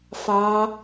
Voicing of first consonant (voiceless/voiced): voiceless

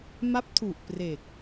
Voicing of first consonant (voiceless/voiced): voiced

